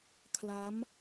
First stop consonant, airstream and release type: aspirated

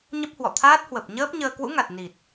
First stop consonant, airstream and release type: plain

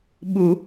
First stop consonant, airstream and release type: implosive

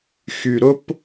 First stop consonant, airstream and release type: plain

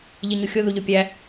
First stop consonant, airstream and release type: plain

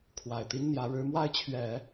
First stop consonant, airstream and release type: aspirated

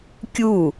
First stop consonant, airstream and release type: plain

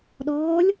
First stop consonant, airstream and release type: implosive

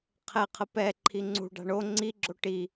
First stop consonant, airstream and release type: aspirated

